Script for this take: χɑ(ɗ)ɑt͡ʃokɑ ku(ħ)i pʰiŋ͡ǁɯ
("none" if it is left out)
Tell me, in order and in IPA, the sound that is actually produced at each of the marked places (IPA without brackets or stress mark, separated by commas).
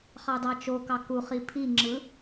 d, χ